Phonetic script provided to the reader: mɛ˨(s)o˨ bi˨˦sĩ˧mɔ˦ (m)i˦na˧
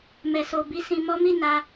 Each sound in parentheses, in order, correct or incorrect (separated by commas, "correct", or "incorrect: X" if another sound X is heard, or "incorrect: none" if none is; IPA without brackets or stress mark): correct, correct